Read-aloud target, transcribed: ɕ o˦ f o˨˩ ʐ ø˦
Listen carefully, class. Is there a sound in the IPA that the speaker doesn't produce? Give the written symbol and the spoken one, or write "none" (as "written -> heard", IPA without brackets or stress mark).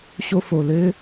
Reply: ʐ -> l